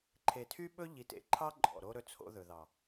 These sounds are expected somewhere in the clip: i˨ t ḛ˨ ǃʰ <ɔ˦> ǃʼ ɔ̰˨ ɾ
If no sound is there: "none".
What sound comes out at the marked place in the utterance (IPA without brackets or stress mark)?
ɑ˦